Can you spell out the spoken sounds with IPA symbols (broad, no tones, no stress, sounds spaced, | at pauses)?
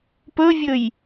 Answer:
p ɵ vʲ ɵ j